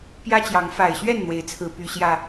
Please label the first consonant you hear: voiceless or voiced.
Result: voiceless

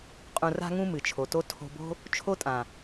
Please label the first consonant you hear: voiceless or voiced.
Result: voiceless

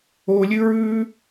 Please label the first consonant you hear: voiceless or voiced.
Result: voiced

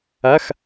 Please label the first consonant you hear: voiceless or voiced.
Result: voiceless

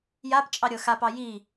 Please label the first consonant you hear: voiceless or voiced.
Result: voiced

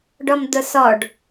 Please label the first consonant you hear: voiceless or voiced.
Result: voiced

